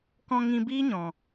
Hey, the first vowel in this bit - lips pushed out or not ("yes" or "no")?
yes